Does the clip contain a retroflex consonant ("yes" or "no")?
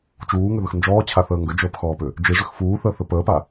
yes